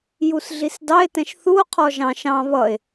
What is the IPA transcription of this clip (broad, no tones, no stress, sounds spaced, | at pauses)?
j u s ɮ i s d ɑ e̯ t ɛ̃ ʃ θ u o̯ qʰ ɔ ʒ ɑ̃ ʃ ɑ̃ β ʌ e̯